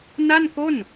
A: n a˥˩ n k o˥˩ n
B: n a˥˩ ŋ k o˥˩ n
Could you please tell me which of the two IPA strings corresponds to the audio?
A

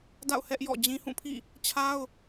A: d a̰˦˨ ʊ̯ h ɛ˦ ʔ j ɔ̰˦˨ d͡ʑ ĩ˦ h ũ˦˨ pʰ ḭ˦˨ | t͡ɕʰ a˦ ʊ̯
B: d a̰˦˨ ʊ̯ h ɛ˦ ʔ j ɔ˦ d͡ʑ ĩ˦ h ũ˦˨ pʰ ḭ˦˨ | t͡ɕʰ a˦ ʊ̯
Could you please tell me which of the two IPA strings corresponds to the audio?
A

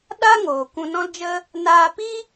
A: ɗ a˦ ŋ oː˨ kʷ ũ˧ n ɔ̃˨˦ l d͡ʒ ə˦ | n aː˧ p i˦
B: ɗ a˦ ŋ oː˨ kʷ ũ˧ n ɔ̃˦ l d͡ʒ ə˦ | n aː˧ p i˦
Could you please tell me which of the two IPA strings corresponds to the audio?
B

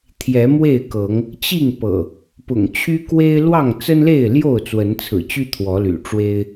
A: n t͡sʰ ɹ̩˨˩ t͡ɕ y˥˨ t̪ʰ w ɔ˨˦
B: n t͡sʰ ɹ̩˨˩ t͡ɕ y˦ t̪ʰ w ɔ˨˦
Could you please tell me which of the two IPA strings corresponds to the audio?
B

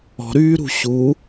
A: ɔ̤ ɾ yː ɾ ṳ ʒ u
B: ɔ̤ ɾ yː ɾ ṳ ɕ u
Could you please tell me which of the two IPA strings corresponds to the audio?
B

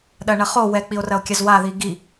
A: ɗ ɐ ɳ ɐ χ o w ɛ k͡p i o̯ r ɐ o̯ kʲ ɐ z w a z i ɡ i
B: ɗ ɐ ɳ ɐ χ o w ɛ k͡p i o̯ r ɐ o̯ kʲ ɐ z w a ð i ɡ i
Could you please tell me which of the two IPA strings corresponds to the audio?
B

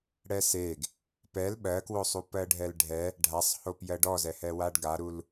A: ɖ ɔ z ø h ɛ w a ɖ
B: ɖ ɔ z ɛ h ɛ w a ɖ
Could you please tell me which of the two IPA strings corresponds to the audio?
B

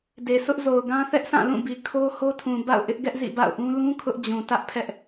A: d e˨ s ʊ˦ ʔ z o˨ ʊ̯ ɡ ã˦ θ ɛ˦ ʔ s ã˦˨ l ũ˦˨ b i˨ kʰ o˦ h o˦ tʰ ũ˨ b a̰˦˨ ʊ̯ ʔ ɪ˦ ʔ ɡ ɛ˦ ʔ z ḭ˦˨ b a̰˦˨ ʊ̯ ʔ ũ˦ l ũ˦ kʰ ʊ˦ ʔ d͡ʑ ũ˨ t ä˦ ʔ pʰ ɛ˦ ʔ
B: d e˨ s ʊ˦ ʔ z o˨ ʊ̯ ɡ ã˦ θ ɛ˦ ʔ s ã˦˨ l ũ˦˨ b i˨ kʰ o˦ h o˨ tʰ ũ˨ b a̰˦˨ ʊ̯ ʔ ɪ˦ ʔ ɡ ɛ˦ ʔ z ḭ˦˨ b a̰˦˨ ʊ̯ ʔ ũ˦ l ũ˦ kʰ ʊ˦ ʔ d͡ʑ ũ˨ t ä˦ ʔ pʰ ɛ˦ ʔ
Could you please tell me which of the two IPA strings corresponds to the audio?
A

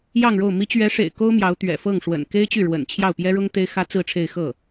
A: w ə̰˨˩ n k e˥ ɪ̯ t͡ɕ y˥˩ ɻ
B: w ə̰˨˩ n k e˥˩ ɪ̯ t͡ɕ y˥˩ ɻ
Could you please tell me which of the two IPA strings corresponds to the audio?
A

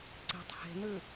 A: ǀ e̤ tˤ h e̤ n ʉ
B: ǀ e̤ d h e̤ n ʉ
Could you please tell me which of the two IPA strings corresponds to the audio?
A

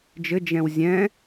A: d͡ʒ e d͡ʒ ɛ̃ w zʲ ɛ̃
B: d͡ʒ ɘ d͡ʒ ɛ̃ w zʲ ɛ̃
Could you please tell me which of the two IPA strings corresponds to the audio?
B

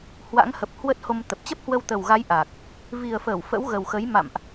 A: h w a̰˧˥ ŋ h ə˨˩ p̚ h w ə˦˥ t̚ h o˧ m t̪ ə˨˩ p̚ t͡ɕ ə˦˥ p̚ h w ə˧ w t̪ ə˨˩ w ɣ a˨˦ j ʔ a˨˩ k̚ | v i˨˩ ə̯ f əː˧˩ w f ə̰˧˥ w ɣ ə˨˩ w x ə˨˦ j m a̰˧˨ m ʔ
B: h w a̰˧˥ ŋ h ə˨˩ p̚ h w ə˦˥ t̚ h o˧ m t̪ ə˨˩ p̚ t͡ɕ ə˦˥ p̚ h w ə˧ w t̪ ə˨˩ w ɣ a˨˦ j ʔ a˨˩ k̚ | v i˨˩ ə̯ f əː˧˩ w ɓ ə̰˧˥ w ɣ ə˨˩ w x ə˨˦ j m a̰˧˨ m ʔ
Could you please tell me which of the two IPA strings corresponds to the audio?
A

